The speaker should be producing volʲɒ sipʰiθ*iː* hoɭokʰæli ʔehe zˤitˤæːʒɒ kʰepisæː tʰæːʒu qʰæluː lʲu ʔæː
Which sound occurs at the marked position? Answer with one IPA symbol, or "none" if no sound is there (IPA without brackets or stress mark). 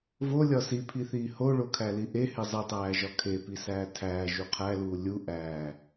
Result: iː